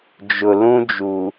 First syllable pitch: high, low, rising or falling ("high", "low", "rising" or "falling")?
low